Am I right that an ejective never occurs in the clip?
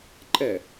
no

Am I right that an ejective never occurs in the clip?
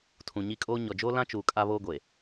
no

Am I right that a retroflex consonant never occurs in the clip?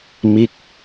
yes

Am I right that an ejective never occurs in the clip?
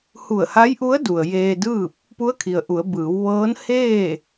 yes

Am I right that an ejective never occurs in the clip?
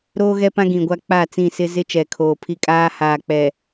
no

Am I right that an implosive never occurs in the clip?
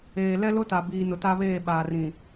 no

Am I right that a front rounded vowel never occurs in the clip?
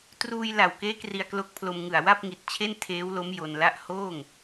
yes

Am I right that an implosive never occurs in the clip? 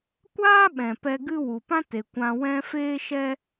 no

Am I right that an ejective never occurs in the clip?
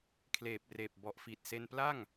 yes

